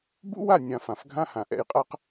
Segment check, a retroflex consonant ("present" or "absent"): absent